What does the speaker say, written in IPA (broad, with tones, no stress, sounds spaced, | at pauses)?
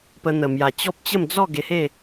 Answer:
p ə˧ n̪ ə˨˩ m j a˨˩ t͡ɕ ɔ˦ p̚ t͡ɕ ə˥˧ m d͡z ɔ˥˧ ɡ e˧ h e˥˧